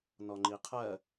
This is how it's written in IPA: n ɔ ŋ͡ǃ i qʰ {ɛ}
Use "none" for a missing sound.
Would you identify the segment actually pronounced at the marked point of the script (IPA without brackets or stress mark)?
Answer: ɜ